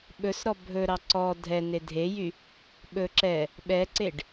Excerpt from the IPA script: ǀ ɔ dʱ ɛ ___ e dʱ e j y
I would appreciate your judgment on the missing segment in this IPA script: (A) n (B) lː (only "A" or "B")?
A